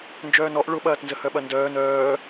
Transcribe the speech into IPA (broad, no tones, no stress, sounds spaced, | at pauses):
n d͡ʒ œː n ɔ ʔ ɭ ʊ ɓ ɐː t n z ə h œ ɓ ɐ n d œː n œː